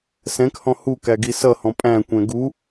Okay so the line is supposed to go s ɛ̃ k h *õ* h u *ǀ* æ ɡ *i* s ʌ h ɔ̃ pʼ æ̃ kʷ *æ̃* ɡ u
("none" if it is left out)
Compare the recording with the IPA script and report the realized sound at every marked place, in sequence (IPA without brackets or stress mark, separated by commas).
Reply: ɔ̃, k, i, ɛ̃